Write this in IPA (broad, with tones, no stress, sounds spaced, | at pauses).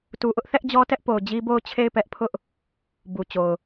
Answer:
t u˨ ʔ ʊ˦ ʔ θ ɛ˦ ʔ d͡ʑ ɔ˦ t ɛ˦ ʔ p o˨ ʊ̯ d͡ʑ i˦ b o˦˨ ʊ̯ t͡ɕʰ e˦˨ ɪ̯ p ɛ˦ ʔ pʰ ʊ˦ ʔ | b u˨ t͡ɕ o˨ ʊ̯